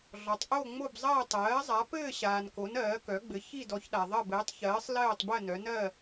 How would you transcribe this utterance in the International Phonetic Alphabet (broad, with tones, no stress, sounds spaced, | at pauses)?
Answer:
ɮ ɔ˩ tˤ ʔ o˦˨ ŋ͡m o˦˨ b zˤ ɐː˦˨ tˤ ɜː˩˧ zˤ a˩˧ p ɘː˦˨ ɕ aː˩ n k o˩˧ n ɜː˩˧ k œ˩˧ ɡ͡b ɘ˩˧ ç i˦˨ d ɔ˩˧ ç ɗ a˩ ðˤ ɜ˦˨ b ɘː˩˧ tˤ ç ɜː˩˧ sˤ l ɜː˦˨ tˤ b ɜ˦˨ n œ˩˧ n ɜ˦˨